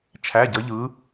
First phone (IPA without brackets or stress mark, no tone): t͡ʃʰ